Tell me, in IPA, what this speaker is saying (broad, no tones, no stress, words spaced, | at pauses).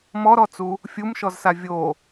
mɔɾɔt͡su | fʲumʃɔzsa vʲo